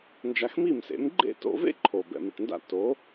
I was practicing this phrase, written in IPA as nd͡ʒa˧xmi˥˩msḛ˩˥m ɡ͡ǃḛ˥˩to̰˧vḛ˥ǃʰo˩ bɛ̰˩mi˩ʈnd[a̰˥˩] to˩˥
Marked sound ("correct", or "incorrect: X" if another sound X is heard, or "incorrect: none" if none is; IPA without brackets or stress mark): correct